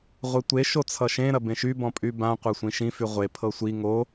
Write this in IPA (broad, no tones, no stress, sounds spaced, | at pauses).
ʁʷ e tʷ e ʃ o t͡sʰ ʌ ʃ ẽ ɾ ɐ b ẽ ʃ y b ɔ̃ pʼ y b ã qʷ a sʷ ĩ ʃ ĩ f y ʁʷ e pʰ ɤ sʷ i ŋ o